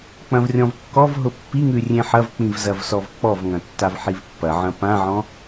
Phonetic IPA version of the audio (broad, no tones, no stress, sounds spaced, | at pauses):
k͡p ɐ̃ v rʲ ɔ̃ v kː ɔ v ɦ ʊ pː i ŋ ʉ rʲ ẽ ħ ɐ v k͡p ĩ v z ɐ v s ɔ v k͡p ɔ v ŋ ɐ̃ tː a v ħ i v pː ɐ ʕ ɐ̃ p ã ʕ ɔ̃